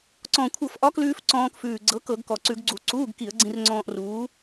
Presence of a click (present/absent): present